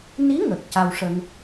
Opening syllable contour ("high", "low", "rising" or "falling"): rising